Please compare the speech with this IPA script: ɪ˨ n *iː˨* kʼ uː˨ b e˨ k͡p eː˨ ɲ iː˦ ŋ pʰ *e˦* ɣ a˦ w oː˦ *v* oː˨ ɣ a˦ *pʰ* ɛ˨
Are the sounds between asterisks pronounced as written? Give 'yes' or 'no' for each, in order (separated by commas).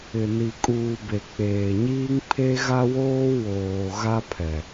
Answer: no, yes, no, yes